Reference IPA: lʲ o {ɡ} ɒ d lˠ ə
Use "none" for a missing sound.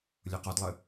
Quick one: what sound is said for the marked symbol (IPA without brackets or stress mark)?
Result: q